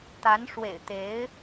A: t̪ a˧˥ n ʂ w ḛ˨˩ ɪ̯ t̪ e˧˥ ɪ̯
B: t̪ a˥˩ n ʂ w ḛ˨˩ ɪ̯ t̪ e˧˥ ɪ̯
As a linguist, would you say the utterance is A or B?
A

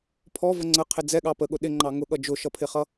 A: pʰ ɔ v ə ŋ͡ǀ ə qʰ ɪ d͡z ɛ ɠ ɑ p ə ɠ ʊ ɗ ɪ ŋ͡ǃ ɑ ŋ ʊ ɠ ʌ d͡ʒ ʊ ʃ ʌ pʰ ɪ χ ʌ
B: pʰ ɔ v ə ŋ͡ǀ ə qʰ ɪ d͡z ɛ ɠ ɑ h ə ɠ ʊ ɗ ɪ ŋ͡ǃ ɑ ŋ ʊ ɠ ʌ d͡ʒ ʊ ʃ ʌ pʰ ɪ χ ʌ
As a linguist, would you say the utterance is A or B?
A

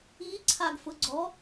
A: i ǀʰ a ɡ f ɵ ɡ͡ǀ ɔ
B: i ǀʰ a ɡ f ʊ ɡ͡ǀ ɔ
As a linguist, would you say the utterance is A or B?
B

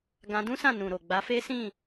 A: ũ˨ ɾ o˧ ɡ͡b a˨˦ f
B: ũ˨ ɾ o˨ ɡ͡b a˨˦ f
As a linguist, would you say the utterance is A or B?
B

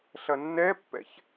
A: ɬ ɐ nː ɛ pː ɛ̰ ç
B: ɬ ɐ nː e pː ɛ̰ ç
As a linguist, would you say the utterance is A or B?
A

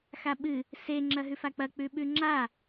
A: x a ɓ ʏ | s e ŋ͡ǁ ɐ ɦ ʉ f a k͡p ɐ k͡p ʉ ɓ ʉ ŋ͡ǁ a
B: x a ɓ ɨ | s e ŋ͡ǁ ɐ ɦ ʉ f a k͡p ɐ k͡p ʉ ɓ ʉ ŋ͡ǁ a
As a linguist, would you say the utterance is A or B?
B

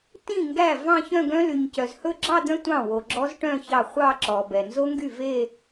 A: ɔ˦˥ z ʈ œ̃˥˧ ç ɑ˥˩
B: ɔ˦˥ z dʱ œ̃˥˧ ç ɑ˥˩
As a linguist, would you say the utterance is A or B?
A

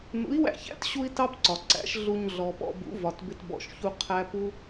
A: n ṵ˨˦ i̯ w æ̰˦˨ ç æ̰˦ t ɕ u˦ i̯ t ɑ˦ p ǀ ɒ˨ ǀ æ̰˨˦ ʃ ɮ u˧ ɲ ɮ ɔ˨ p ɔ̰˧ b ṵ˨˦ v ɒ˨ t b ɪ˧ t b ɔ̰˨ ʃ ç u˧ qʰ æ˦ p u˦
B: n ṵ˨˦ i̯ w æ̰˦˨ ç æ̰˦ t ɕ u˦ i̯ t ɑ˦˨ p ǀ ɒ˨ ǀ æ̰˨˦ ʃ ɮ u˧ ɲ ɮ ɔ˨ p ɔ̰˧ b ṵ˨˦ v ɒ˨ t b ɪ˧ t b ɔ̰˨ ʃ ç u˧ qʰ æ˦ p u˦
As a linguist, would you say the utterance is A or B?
A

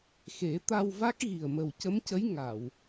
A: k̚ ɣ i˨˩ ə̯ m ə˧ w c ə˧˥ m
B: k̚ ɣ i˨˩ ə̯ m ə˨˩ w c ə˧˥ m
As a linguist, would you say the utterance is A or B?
B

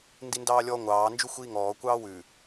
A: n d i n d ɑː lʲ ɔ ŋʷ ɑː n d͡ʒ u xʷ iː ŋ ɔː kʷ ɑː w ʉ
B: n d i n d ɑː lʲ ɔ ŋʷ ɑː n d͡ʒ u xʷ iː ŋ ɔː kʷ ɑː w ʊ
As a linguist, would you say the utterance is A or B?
A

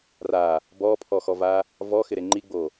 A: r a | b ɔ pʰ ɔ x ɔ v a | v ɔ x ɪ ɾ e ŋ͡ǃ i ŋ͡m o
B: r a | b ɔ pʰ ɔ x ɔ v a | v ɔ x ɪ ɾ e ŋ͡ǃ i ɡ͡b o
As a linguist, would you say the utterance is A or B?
B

